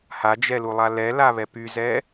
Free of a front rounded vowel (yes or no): no